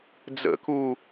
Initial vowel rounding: unrounded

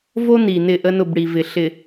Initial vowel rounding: rounded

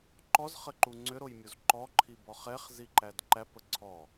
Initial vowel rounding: rounded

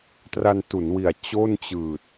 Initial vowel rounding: unrounded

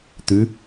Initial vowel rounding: rounded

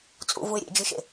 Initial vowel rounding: rounded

